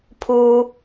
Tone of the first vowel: high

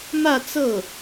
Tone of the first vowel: falling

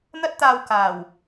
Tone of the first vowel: high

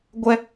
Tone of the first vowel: high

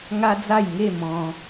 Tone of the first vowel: high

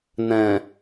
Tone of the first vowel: low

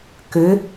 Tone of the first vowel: rising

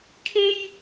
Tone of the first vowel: high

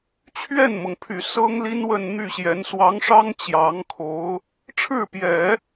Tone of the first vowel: falling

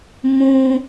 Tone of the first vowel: high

